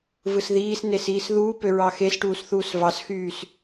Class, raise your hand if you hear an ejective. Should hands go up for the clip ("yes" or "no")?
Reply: no